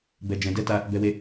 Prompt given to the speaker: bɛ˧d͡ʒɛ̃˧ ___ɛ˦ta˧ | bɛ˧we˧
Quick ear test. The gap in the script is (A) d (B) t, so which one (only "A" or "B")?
A